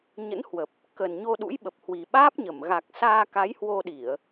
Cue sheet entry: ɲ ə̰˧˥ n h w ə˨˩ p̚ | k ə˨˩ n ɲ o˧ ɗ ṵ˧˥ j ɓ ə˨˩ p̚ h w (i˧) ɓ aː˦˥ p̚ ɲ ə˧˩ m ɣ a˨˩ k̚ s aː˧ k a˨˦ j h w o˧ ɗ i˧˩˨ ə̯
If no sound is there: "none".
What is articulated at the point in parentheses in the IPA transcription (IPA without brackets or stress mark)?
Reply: i˨˩